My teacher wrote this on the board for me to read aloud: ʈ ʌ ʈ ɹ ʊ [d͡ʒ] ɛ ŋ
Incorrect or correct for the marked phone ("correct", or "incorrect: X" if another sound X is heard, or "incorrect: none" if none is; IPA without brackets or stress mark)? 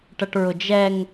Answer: correct